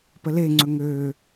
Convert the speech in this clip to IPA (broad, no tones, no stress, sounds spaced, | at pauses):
p ə l e ŋ͡ǀ ɵ ŋ ø